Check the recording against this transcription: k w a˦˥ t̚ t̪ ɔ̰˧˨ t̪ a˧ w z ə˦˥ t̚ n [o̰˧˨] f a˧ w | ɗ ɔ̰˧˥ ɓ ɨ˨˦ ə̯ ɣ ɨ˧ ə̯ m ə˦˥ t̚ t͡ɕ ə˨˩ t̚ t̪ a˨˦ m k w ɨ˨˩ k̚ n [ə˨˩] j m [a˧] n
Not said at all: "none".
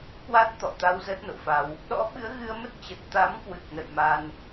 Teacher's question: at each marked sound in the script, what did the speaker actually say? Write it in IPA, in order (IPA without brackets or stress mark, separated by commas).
o̰˧˨, ə̰˧˨, a˧